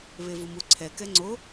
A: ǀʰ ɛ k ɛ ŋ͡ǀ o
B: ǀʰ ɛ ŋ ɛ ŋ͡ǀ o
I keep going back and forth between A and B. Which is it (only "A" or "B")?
A